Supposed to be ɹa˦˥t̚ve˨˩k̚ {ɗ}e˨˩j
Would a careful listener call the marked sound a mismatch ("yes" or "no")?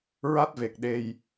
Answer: no